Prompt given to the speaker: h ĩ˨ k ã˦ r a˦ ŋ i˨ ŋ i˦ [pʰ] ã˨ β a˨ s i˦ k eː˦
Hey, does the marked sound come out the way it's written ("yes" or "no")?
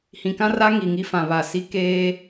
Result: no